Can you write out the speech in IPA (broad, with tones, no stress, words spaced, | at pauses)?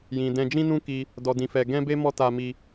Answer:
jĩ˨ dɛ̃˧d͡ʒĩ˦nũ˦ ki˧ | dɔ˧dĩ˧fɛ˧ ɡɛ̃˦be˦ mɔ˦ta˧mi˧